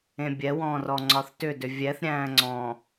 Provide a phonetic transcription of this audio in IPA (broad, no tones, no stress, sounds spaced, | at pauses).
ẽ bʲ ɛ w ɔ̃ː r ɔ ŋ͡ǀ ɒ θ t ʏ d ʏ vʲ ɛ θ ɾʲ æ̃ː ŋ͡ǀ ɔ̃